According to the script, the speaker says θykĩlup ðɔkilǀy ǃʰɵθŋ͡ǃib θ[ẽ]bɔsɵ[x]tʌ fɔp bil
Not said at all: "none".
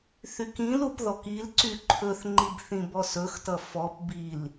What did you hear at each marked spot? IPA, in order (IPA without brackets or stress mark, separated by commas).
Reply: ĩ, x